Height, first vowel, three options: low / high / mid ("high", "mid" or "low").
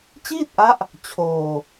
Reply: high